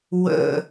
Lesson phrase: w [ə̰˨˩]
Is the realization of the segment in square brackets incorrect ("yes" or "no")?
no